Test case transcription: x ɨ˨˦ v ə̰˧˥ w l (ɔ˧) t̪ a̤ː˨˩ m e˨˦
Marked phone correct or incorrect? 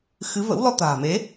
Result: correct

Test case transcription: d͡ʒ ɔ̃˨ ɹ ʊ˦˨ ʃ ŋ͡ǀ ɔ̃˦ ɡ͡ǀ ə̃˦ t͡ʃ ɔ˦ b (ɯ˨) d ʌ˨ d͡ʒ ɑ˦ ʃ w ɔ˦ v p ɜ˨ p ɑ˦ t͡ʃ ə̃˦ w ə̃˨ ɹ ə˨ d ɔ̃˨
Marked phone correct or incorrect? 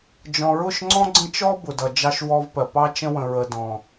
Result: incorrect: ʊ˨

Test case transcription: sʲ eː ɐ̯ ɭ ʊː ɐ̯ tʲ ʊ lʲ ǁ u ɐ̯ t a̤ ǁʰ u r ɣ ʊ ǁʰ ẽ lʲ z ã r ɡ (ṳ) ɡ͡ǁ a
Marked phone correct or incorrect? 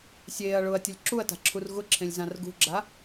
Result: correct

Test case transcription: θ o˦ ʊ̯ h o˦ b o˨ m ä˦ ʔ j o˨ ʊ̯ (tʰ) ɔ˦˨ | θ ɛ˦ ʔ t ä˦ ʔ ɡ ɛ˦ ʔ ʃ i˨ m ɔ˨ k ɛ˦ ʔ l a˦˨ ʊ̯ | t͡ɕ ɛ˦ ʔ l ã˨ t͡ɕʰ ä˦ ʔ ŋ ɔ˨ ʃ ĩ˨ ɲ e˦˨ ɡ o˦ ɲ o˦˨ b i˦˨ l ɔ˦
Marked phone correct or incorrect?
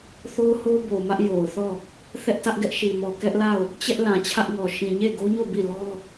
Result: incorrect: θ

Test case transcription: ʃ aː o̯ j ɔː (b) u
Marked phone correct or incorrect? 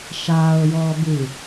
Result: correct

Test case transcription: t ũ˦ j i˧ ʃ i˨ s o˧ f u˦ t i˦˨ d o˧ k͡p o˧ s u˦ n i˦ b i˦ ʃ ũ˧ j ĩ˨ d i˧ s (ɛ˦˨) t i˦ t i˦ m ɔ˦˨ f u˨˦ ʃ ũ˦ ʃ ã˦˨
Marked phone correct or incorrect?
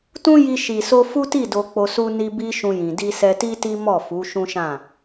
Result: incorrect: ɛ˧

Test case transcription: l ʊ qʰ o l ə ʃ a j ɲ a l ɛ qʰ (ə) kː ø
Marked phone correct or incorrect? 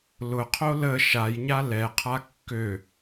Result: incorrect: a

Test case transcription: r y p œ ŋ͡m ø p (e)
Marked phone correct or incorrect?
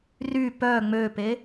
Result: correct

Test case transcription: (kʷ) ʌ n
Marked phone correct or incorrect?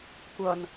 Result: correct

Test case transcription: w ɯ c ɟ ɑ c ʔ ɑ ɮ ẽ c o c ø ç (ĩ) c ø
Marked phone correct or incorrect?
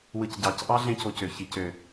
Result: incorrect: i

